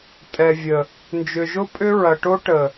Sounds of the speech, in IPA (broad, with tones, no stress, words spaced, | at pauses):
tʼɛ˨vʲə˨ | nd͡ʒʏ˨ʒʊ˦ pʼʏ˦ɹɐ˨ʈo˦ ʈə˨